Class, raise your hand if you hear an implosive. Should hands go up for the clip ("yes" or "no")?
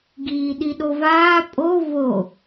yes